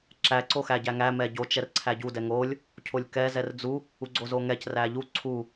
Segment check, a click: present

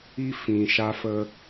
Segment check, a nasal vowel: present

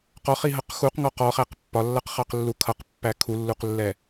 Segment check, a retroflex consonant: absent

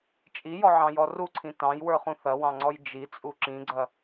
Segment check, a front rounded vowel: absent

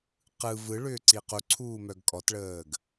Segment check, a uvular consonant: present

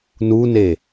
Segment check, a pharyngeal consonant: absent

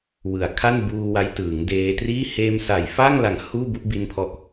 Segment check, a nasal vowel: absent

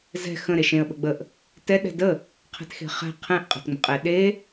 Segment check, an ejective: present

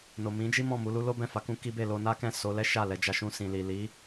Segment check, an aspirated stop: absent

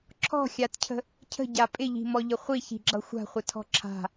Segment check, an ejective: present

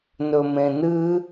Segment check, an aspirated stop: absent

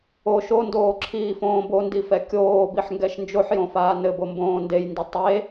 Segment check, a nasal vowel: present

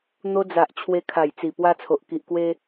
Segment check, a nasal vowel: absent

